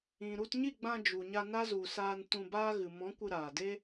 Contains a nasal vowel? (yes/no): yes